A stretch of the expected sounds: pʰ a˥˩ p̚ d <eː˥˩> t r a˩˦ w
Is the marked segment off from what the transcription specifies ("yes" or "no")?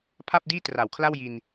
yes